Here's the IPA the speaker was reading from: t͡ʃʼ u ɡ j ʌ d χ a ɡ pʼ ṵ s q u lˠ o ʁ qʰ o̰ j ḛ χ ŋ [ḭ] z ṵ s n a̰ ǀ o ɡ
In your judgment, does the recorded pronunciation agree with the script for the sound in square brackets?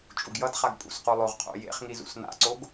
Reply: no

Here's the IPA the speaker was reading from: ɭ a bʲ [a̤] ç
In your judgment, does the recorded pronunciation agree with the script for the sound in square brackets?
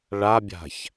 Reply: yes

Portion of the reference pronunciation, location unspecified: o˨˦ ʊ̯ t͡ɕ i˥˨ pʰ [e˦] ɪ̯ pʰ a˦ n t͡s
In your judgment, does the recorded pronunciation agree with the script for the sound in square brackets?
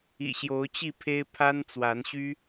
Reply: yes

